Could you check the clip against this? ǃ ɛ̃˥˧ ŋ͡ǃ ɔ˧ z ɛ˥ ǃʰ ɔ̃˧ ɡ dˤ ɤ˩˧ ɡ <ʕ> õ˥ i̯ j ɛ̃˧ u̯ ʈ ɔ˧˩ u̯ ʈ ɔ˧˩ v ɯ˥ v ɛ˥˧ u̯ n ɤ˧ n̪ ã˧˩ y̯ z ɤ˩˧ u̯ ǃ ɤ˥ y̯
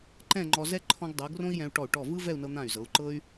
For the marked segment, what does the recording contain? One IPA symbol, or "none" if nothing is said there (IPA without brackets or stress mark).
r